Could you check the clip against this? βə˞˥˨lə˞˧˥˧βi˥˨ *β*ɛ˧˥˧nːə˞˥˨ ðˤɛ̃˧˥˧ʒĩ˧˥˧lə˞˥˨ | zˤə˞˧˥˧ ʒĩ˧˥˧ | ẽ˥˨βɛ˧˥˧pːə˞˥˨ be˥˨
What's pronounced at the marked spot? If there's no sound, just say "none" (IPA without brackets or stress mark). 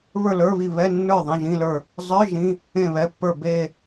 β